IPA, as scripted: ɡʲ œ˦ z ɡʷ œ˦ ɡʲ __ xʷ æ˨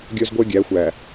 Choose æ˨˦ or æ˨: æ˨˦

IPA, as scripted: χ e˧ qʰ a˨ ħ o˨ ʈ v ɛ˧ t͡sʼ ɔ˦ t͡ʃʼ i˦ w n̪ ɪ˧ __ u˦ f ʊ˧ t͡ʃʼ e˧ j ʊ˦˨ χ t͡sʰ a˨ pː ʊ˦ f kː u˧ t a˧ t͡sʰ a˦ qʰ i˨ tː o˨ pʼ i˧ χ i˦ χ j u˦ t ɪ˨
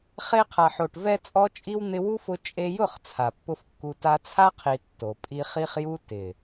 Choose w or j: w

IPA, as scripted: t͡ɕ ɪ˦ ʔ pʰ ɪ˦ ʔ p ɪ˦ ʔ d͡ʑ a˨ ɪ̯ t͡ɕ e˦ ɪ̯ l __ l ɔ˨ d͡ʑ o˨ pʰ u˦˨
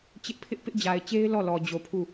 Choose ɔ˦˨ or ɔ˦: ɔ˦˨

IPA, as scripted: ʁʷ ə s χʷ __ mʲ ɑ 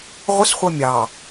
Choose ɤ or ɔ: ɤ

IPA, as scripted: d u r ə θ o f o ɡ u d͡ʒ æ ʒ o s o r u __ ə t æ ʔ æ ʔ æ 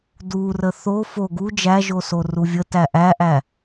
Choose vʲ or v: vʲ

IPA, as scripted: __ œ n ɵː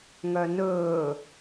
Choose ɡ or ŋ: ŋ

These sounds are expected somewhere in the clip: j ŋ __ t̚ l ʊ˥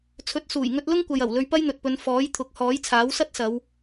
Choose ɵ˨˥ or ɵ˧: ɵ˧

